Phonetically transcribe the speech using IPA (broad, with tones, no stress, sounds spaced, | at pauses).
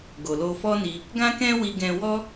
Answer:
ɡ o˨ l o˧ f ɔ˦ n i˧ | ɡ ã˦ k ɛ̃˦ w i˧ ɡ ɛ̃˧ w ɔ˦